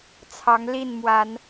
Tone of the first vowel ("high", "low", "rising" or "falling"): rising